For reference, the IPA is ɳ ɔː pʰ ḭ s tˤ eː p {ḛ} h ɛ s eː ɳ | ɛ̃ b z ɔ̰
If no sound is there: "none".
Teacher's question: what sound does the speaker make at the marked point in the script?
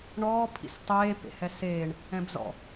ḛ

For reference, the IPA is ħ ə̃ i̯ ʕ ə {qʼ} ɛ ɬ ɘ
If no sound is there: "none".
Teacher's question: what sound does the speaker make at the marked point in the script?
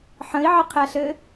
qʰ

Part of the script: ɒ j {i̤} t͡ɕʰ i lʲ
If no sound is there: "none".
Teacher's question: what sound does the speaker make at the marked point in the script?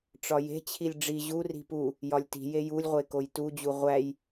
e̤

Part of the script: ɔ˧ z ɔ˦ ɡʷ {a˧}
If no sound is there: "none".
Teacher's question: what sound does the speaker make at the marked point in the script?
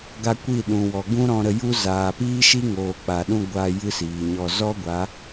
a˨˦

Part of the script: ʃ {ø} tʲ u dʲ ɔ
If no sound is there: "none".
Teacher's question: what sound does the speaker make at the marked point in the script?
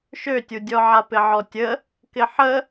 ø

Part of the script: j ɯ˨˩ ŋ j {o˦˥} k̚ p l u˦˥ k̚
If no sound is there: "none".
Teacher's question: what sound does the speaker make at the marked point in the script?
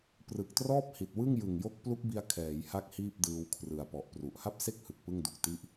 o˦˥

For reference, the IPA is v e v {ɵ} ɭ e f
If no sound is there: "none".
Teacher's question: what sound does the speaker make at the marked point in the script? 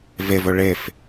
ɵ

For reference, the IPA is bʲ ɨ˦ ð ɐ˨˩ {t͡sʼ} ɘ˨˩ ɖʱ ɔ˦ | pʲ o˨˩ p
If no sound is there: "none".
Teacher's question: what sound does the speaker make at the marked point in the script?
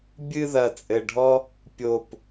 t͡sʼ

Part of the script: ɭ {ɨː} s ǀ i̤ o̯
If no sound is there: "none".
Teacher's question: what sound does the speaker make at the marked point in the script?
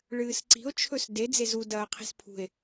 ɨː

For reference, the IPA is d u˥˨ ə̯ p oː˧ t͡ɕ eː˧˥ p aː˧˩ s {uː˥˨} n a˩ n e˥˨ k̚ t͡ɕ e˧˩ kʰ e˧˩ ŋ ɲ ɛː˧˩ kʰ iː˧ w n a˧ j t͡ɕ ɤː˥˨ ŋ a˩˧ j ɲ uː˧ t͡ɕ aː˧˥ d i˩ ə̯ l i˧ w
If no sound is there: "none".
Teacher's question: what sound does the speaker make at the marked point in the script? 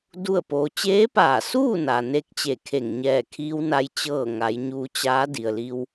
uː˥˨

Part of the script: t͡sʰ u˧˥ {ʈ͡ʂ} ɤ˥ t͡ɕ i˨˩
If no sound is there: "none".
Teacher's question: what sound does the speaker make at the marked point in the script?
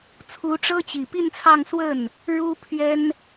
ʈ͡ʂ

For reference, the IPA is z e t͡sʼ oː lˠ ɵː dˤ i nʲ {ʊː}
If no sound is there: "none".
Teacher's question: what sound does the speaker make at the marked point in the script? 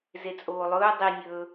ɵː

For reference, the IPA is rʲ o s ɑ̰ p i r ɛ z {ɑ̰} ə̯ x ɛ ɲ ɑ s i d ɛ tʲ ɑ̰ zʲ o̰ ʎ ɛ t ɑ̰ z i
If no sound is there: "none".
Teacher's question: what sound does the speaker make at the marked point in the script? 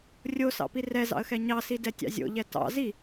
ɑ̰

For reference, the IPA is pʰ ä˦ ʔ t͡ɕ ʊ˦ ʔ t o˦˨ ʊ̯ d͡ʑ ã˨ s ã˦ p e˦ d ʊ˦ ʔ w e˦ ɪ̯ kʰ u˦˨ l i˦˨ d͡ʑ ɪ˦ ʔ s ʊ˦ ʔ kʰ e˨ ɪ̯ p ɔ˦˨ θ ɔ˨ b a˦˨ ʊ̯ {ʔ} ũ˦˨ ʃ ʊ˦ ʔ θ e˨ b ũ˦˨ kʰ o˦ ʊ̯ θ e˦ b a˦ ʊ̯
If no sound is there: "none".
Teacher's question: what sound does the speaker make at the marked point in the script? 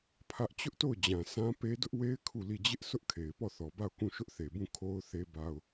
k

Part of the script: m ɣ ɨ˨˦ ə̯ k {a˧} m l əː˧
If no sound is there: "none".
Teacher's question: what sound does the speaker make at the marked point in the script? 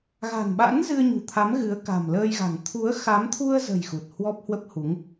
a̤˨˩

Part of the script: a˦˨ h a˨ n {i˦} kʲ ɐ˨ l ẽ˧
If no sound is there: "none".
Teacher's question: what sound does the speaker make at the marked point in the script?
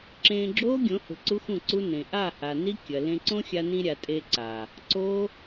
i˦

